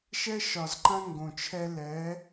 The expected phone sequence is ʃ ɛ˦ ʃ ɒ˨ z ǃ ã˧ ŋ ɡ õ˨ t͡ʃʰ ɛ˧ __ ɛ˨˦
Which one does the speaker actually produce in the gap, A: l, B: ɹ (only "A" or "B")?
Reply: A